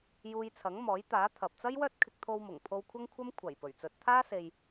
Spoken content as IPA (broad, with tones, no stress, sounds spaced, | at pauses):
j uː˧ j t͡sʰ ɐ˨˥ ŋ m ɔː˨˥ j t̪ aː˨˥ t̪ʰ ɐ˨ p̚ t͡s ɐ˥ j w œː˥ t̚ kʰ ɪ˧ k̚ t̪ʰ o˧ w m ʊ˨˩ ŋ pʰ o˧ w kʷʰ ɐ˥ ŋ kʷʰ ɐ˥ m kʷʰ ɐ˨˩ j p ɵ˨˩ ɥ t͡s ɵ˨˥ t̚ t̪ʰ aː˥ s e˨ j